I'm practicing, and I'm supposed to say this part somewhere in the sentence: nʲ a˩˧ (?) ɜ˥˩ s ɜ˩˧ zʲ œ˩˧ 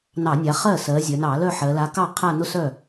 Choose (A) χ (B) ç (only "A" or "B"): A